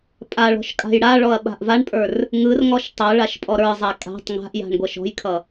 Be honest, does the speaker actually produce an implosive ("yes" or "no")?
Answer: yes